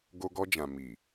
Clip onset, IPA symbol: ɡ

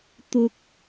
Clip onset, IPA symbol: t̪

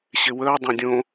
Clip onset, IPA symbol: ɕ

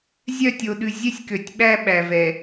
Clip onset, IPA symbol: zʲ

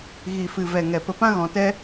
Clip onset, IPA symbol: ɣ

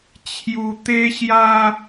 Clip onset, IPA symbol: t͡ɕʰ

